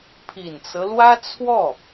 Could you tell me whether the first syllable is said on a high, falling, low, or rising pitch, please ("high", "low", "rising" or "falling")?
low